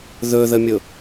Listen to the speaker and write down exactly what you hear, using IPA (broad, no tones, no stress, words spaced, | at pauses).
ðɵðəmʲʊ